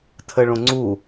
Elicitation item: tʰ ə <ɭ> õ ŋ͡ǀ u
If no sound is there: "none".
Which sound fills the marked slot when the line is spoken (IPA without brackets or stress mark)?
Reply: ɭ